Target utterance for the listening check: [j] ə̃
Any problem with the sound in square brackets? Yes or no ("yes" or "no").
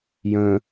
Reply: no